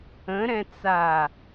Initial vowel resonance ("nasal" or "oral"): nasal